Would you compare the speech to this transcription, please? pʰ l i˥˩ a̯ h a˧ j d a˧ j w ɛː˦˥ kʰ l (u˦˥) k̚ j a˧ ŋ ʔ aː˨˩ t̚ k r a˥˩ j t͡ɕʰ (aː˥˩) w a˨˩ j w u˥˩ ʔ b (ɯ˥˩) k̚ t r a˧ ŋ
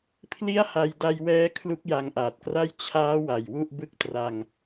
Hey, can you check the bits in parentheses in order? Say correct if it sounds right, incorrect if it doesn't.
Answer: correct, incorrect: aː˦˥, correct

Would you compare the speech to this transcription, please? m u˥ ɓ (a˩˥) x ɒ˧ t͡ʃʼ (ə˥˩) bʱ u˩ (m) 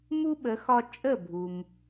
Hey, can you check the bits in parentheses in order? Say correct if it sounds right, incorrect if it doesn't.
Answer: incorrect: ə˩˥, correct, correct

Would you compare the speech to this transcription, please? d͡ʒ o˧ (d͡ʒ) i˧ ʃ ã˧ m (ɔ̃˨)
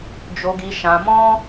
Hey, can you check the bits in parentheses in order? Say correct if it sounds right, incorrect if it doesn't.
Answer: incorrect: ɡ, incorrect: ɔ̃˦

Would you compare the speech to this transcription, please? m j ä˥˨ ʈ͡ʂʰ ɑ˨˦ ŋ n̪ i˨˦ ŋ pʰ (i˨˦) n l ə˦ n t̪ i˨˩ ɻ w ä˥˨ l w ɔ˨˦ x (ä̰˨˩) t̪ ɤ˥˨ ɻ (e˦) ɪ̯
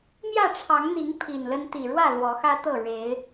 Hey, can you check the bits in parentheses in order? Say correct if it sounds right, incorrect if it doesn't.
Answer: incorrect: i˨˩, incorrect: ä˦, incorrect: e˨˦

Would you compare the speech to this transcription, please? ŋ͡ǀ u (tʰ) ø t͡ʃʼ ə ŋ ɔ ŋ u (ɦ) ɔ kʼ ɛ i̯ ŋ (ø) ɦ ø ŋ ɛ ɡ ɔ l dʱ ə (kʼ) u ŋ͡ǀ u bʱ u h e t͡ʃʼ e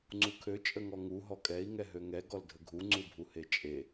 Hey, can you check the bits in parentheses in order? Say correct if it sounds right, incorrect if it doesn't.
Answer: incorrect: kʰ, correct, incorrect: ɛ, incorrect: ɡʱ

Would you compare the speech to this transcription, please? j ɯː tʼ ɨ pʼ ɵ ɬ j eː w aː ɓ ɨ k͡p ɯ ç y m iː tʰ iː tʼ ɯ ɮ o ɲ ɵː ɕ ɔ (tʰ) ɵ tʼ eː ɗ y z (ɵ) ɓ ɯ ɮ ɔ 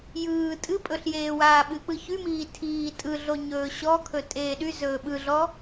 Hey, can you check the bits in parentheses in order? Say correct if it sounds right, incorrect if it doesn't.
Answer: incorrect: kʰ, incorrect: ɵː

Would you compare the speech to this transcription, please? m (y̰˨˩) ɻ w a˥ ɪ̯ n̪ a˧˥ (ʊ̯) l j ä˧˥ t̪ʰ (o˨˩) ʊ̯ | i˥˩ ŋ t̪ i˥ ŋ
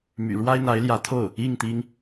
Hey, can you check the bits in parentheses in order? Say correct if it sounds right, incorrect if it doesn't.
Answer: correct, incorrect: ɪ̯, incorrect: o˥˩

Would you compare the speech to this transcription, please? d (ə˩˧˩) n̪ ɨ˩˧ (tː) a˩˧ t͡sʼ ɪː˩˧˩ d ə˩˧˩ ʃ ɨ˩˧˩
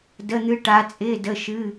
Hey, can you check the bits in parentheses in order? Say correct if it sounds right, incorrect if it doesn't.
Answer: correct, incorrect: ʈ

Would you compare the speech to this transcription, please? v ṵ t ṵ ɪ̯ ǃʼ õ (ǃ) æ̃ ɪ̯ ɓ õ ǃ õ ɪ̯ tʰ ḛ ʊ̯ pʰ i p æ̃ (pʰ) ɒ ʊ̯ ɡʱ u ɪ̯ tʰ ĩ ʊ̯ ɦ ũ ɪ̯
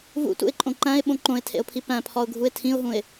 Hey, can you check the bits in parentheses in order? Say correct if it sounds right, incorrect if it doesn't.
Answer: correct, correct

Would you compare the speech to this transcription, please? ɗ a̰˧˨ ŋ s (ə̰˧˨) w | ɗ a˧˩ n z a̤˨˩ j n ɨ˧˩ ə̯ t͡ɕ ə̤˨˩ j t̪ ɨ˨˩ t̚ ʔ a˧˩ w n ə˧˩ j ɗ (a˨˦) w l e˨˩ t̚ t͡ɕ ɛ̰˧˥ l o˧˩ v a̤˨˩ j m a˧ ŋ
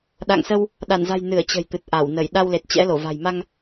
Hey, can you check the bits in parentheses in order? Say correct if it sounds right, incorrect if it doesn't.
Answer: incorrect: ə˧, incorrect: a˧

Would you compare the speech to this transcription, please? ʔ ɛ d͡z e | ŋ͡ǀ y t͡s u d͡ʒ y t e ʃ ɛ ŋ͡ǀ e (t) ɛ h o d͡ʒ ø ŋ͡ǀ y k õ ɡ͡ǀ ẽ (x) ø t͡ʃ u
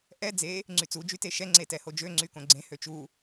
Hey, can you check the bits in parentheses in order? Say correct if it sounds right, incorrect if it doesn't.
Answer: correct, incorrect: h

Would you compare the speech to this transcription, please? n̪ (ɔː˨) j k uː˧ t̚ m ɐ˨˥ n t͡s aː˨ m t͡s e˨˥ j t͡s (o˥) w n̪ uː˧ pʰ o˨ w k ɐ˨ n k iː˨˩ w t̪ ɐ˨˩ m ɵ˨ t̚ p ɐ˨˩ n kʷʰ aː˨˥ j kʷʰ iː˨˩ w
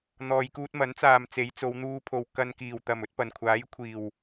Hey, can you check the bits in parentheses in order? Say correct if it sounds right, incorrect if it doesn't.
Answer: correct, incorrect: o˨˧

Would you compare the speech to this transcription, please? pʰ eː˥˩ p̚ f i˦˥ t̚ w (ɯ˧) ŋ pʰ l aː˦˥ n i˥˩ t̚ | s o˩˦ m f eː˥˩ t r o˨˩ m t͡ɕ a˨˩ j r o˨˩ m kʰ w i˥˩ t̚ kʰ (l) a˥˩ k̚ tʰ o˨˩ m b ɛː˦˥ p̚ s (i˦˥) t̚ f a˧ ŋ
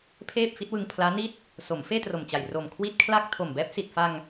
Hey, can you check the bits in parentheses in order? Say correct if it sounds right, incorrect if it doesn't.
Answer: correct, correct, incorrect: i˨˩

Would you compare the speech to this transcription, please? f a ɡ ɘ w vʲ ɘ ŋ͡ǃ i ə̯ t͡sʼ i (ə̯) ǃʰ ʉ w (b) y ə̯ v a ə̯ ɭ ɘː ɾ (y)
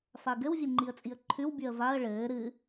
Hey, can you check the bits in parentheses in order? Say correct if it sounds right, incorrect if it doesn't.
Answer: correct, correct, incorrect: ɨ

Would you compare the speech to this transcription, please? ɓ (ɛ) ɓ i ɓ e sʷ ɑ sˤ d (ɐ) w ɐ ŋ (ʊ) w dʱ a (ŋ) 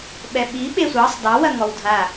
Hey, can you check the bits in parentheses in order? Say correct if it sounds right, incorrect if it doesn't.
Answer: correct, incorrect: ɑ, incorrect: ɔ, incorrect: none

